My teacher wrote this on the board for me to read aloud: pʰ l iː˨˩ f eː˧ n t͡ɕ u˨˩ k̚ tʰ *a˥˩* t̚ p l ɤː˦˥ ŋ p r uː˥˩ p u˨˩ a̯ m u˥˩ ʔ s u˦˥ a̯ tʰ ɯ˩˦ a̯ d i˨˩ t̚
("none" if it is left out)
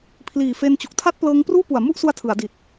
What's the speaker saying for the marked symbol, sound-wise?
a˥˩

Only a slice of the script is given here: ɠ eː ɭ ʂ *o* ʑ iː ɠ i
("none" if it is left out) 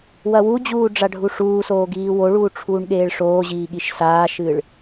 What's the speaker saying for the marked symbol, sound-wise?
oː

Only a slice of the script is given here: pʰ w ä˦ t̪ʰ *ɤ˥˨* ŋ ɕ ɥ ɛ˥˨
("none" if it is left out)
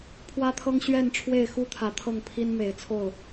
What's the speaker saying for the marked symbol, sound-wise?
ɤ˦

